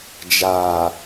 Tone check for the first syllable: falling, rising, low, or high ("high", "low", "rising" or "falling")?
low